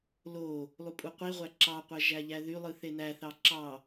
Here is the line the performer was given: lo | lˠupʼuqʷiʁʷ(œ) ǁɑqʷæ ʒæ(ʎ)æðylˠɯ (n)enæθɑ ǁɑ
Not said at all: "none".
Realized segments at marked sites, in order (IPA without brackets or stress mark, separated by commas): æ, ʎ, θ